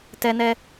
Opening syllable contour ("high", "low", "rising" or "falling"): high